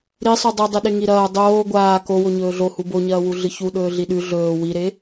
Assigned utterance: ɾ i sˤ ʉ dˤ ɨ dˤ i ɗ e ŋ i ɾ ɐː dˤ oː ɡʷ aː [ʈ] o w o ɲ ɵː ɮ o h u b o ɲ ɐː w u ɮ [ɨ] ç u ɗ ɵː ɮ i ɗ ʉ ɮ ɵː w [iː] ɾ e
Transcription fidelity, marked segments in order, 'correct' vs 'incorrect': incorrect, correct, incorrect

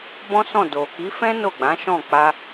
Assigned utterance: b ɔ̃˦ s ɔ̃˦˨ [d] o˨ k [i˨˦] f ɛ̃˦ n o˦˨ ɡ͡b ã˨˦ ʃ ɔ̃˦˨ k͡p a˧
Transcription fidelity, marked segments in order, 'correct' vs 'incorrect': correct, correct

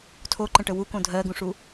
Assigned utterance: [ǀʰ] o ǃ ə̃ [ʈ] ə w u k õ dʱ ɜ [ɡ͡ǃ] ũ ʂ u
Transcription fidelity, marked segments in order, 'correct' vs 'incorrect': incorrect, correct, incorrect

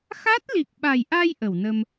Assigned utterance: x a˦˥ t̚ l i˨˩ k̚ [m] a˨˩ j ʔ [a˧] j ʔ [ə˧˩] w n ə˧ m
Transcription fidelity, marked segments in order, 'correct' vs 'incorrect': incorrect, correct, correct

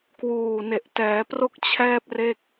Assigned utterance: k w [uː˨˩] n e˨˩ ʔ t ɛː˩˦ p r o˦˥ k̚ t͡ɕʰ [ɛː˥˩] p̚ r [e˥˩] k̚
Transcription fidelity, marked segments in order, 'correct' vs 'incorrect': correct, correct, correct

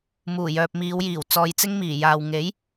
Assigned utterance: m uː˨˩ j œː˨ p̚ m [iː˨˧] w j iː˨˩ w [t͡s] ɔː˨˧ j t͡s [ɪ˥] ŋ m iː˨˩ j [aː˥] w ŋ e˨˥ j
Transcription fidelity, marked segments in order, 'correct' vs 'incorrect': correct, correct, correct, incorrect

